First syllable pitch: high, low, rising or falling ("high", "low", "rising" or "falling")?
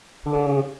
high